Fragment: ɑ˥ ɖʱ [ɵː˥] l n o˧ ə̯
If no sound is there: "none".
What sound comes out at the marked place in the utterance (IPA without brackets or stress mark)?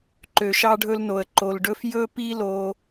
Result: ɵ˥